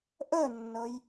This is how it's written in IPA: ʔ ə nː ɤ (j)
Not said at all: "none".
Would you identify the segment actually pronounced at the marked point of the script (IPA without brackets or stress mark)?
j